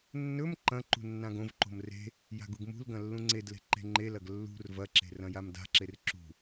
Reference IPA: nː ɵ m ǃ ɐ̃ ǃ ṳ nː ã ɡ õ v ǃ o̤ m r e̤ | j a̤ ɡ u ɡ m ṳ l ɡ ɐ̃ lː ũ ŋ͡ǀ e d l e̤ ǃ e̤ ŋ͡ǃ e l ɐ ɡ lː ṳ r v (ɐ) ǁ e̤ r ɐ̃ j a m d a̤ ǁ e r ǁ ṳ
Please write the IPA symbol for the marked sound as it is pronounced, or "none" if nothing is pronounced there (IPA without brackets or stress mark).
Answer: ɐ